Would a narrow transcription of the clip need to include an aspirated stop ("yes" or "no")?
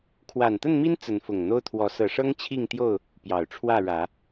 yes